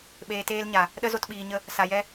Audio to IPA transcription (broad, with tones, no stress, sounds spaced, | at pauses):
ɓ eː˧ t eː˦ l ɲ a˨ | ɗ ə˦ z o˧ t ɓ iː˨ ɲ ə˧ | s a˨ j ɛ˧